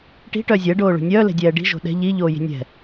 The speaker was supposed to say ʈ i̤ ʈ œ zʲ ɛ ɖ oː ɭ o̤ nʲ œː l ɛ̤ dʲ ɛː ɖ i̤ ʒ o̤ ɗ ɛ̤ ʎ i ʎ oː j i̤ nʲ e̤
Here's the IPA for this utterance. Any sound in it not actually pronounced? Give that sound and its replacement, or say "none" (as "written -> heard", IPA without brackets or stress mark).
e̤ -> ɛ̤